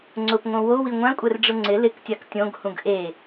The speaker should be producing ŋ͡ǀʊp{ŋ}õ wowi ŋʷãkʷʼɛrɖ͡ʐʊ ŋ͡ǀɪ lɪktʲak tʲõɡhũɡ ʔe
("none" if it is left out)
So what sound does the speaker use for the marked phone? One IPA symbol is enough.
ŋ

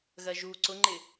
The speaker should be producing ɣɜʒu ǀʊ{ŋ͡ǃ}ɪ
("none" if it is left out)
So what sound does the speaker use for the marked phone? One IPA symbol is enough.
ŋ͡ǃ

